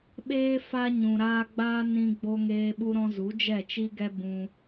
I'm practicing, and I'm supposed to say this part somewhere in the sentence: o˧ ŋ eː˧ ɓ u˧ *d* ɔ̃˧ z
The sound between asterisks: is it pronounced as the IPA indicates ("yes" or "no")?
no